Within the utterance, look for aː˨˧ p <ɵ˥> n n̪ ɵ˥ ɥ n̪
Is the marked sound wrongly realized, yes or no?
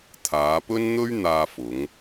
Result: no